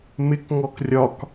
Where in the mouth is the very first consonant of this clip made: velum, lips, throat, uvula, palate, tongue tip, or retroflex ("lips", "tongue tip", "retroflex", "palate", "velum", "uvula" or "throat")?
lips